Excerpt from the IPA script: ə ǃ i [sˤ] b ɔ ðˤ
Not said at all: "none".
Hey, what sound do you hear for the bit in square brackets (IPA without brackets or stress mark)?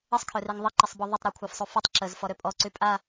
sˤ